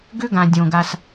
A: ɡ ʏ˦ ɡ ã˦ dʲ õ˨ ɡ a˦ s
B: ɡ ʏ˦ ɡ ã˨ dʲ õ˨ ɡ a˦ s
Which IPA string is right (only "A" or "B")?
B